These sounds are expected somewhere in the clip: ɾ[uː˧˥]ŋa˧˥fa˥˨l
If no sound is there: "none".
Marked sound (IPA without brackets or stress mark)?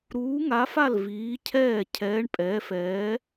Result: uː˧˥